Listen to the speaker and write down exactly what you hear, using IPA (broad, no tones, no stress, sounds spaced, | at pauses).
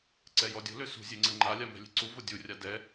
ǀ ɛ j ɔ dʲ o̤ l ø s ṳ zʲ e ŋ͡ǀ ə ŋ͡ǃ a lʲ a m ɛ̤ lʲ e̤ ǀ u v o dʲ u rʲ a d ɛ